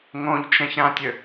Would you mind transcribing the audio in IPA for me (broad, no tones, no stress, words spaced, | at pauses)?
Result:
ŋõʎt͡ʃɛ̃çɾãtʲø